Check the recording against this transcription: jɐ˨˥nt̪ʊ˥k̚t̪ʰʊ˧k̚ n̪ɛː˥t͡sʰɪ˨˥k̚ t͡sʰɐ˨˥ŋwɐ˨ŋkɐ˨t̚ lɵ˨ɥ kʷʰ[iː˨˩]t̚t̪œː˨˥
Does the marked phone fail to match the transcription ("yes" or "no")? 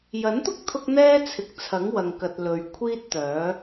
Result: yes